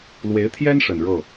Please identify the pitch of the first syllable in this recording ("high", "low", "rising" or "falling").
rising